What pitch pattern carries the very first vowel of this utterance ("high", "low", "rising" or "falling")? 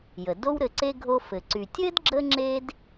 low